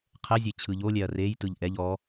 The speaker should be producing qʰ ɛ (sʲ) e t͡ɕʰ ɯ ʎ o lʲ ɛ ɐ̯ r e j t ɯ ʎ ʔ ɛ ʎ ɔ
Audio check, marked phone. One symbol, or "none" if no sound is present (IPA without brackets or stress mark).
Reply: zʲ